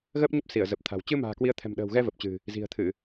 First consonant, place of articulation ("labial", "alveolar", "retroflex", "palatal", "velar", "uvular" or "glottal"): velar